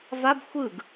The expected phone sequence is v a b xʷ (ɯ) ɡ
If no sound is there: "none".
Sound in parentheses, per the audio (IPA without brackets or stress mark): ɯ